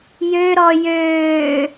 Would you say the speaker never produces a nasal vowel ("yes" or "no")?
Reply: yes